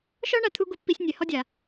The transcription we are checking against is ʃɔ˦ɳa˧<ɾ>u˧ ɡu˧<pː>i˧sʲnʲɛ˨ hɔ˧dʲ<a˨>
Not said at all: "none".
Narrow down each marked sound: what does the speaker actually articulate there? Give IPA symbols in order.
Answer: t̪ʰ, pː, a˨

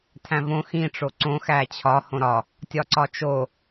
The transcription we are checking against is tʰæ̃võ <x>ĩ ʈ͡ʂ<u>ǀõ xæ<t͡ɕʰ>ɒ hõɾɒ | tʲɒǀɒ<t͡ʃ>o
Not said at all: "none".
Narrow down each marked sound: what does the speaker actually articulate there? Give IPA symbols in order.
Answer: x, o, t͡ɕʰ, t͡ʃ

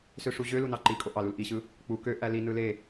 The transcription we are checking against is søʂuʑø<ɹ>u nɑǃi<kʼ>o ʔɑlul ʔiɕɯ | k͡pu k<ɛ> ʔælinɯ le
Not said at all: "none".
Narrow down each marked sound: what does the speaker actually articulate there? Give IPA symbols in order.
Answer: l, kʼ, ø

